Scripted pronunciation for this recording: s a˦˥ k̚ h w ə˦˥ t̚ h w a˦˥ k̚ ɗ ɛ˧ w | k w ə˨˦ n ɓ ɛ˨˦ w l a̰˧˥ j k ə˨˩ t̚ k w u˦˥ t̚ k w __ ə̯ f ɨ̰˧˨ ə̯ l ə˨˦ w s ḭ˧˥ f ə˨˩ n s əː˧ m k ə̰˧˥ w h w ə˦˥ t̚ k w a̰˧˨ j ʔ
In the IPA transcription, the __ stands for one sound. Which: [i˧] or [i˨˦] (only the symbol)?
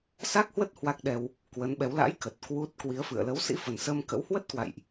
i˨˦